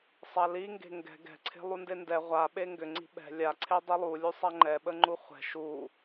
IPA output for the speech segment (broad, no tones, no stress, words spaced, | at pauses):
sˤaliŋɡe̤ ŋɡɛ̤ ɡɛ̤ǀʰe̤ lˠundendɛ ʁʷaɓe ŋɡʏ ŋ͡ǀi̤ɓɛ̤ lʲaǀʰe dˤilˠulʲu sˤaŋ͡ǃɛɓəŋ͡ǃu χʷɛ̤ ʃu